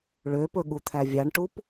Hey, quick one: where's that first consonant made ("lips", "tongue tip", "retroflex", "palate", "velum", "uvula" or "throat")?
retroflex